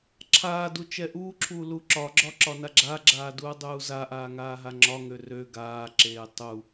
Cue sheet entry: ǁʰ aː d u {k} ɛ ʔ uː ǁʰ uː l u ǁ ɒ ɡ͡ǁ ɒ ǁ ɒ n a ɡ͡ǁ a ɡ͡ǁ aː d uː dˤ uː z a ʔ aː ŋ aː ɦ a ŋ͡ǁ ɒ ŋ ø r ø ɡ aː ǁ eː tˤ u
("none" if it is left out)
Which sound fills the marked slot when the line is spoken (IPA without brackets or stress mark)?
t͡ʃ